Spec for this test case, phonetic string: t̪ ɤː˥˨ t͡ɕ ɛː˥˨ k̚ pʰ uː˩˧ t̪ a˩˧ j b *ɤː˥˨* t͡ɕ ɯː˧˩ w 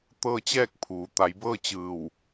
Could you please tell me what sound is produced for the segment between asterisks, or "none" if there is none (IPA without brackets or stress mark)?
ɤː˥˨